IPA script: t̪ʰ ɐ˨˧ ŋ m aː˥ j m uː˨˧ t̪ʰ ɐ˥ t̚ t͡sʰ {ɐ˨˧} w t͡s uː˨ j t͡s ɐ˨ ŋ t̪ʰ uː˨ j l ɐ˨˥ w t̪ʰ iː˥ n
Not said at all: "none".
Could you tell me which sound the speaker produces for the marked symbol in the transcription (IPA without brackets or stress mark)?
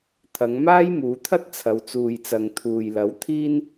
ɐ˨˧